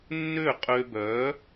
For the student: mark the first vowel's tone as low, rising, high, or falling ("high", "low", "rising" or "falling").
falling